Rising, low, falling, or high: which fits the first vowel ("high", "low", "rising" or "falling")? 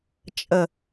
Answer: low